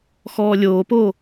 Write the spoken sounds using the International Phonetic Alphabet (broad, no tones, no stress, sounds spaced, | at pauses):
x ɔː lʲ oː p oː